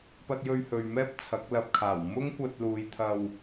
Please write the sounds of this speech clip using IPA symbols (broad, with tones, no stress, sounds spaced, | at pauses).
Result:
p ɐ˧ t̚ j ɵ˧ ɥ h ɵ˨ ɥ m ɛː˥ p̚ t͡sʰ ɐ˨˥ k̚ l ɐ˨ p̚ kʰ aː˨˩ w m ʊ˥ ŋ kʷ ɐ˧ t̚ l uː˨˧ j t̪ʰ ɐ˧ w